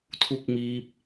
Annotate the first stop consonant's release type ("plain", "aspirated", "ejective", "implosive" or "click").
aspirated